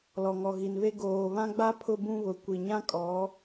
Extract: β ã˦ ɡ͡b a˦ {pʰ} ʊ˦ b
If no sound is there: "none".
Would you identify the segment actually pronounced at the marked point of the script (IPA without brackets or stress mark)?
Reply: pʰ